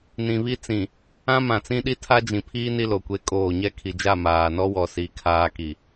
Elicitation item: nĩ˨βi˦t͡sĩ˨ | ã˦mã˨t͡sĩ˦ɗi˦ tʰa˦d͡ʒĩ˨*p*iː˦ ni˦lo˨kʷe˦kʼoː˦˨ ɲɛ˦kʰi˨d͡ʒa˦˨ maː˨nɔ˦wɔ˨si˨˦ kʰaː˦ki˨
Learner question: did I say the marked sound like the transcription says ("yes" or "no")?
no